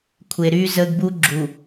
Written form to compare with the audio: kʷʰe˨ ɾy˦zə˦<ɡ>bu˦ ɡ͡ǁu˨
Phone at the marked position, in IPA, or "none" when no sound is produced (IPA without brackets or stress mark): ɡ